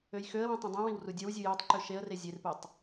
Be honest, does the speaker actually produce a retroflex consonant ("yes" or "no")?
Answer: no